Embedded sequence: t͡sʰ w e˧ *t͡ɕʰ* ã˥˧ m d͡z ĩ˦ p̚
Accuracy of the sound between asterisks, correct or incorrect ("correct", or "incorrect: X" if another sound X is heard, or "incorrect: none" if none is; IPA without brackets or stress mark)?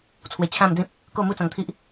correct